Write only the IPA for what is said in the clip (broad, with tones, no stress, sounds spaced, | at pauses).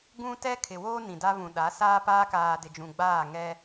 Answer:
ɡ ũ˦ t ɛ˦ kʰ ɪ˨ w oː˦ n ĩ˨ d a˦ β ũ˨ ɗ a˨˦ s aː˦ p aː˦ k aː˨ d ɪ˨ d͡ʒ ũ˨ ɡ͡b aː˦˨ ŋ ɛ˦